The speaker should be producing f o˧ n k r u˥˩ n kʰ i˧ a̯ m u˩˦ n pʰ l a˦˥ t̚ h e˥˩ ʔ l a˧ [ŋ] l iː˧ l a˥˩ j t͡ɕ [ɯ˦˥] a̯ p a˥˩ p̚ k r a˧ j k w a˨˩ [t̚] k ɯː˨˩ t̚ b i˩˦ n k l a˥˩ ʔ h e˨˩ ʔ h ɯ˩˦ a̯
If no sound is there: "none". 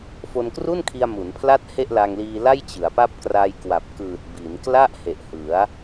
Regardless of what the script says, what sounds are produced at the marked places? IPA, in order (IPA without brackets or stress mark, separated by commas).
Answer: ŋ, ɯ˩˦, p̚